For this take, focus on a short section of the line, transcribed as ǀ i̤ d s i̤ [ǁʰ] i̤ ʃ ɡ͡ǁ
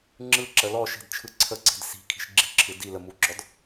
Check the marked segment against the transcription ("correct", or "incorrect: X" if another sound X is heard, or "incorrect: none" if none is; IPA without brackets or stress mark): incorrect: kʰ